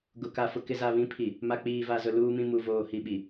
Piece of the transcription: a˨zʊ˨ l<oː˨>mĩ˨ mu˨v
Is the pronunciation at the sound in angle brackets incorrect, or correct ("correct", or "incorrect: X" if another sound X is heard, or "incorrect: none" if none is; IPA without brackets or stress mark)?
incorrect: uː˨